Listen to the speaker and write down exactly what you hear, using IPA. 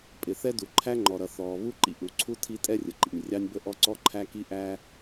pʼɪ˩ θɛ˥du˩ ǃʰæ˥ŋ͡ǃɔ˩ɾʌ˩ θɔː˩βu˥ ǃḭ˥ʔu˩ ǀʰu˥tʰi˥ tʼɛ˥rʲə˩ǃḭ˩nʲ rʲɑ˥nʲbə˥ʔɔ˥ ǀɔ˥ǃʰæ˥ ki˥ʔæ˥

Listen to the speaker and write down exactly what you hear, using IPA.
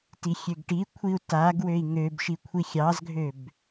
tixʲøɡʈikʷʰiu̯ taɡ wøi̯ŋøbʃi kʷʰixʲɑzɡʱøb

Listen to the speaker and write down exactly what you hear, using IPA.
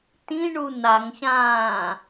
tĩɳu n̪aŋɕãː

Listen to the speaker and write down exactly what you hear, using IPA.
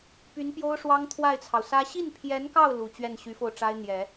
py˧˥npjo˥ʊ̯ʂwɑ˥ŋ t̪ʰwa˥˩ɪ̯t͡sʰɑ˩ʊ̯sä˥ ɕi˥˩npʰjɛ˧˥nkɑ˥˩ʊ̯ lu˨˩t͡ɕɥɛ˥˩nɕy˧˥fo˧ʊ̯ ʈ͡ʂa˥ɪ̯n̪jɛ˨˩˦

